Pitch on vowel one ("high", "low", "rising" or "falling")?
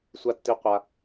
high